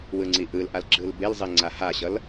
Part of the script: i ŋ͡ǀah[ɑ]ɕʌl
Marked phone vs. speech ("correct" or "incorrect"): incorrect